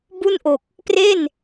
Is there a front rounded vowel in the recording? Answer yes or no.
no